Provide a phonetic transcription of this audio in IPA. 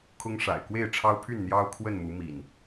kʰ ʊ˦ ŋ ʂ a̰˨˩ ɪ̯ k w e˥˨ ɪ̯ ʈ͡ʂʰ ɑ˦ ʊ̯ pʰ y˥˨ n n̪ j ɑ˦ ʊ̯ kʰ w ə˥˨ n m u˨˦ m ḭ˨˩ n

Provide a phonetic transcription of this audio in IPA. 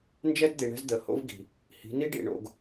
n d͡ʒ ɛ˦ d d̪ i˨ ɳ ɛ̤˦ z d̪ ə˨ h o̰˦ v ɡ i̤˨ | h i̤˨˦ n i˦ ɖ ḭ˨ ɳ o̰˨ ɡ

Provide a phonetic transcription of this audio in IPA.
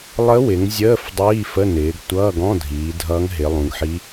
lˠ ə˧˥ w ɪ˩˧ ŋ zʲ əː˧˥˧ f dˤ iː˧˥˧ f ə˧˥˧ n ɪː˩˧ ɡ tʷ ʌː˧˥˧ ɡ ɔ̃˧˥˧ dʱ iː˩˧ dʱ ʌː˧˥ ŋ ɦ ɪ˩˧ lˠ ũ˩˧ ɡ ħ i˧˥

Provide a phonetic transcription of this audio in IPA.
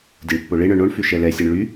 dʲ o ɳ pː o ɭ e ɳ œ ɳ o ɳ f y ʃ ɛ l ɛ sʲ ɛ ɳ ɭ y

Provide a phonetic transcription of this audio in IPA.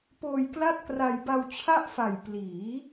p oː˧ j k l a˥˩ t̚ k r a˧ j b a˧ w t͡ɕʰ a˥˩ ʔ f a˨˩ j p l iː˩˦

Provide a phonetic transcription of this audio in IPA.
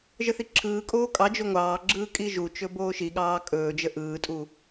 ʒ ə θ i ǁʰ ɯː kʼ oː kʼ ɑ d͡ʒ o ŋʷ ɑː ɡ͡ǁ ɯː kʼ i ʒ u t͡ʃ ɵ b oː ʃ i ɠ ɑː kʼ ɵː d͡ʒ ə ʔ ɯː tʼ u

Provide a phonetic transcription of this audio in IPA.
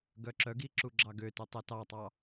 ɡ œ ǁ œ ɡ i ǁ u ɡ͡ǁ ɑ ɡ ø t ɵ tˤ ɛ t ɑ tˤ ɑ

